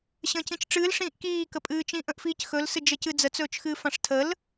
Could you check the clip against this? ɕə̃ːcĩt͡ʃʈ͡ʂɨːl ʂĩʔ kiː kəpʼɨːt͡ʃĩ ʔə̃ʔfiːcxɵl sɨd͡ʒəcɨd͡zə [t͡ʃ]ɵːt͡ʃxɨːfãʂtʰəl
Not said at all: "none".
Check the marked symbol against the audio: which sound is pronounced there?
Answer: t͡s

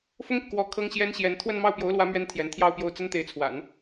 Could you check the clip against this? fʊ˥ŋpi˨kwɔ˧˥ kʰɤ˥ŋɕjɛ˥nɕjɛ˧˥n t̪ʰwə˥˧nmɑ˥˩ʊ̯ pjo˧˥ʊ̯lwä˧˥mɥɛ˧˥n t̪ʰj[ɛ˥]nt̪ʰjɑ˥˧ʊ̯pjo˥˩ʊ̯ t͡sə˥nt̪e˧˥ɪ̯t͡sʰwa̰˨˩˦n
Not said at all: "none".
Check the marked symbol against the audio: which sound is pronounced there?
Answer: ɛ˧˥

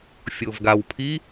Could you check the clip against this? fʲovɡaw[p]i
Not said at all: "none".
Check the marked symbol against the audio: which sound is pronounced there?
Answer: pʰ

